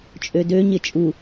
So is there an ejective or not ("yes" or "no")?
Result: yes